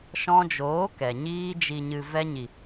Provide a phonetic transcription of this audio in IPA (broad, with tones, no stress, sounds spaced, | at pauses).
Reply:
ʃ ɔ̃˧ d͡ʒ oː˨˦ k ɛ˨ ɲ iː˧ d͡ʒ i˨ ɲ ɨ˨ v ɛ˧ ɲ i˨